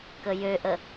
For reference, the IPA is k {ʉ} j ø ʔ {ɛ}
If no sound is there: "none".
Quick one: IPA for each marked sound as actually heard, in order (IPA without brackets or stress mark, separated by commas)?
ə, ə